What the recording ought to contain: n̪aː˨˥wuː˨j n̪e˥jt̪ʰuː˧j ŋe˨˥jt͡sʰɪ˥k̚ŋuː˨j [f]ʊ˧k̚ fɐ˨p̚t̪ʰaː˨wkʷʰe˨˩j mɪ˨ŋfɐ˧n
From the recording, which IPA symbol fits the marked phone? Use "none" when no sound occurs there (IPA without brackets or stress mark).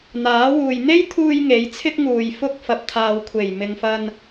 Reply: f